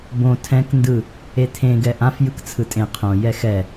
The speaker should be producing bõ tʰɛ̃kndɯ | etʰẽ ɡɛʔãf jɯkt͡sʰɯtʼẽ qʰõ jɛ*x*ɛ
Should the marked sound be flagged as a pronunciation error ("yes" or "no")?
no